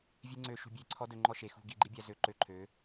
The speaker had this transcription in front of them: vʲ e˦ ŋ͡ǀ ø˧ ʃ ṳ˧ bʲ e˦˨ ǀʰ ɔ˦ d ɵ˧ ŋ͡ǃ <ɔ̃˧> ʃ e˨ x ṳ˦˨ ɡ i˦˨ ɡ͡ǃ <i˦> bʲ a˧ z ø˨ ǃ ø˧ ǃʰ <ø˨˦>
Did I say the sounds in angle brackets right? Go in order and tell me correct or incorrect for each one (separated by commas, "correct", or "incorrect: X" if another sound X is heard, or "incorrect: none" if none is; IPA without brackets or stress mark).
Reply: incorrect: ɔ˧, correct, correct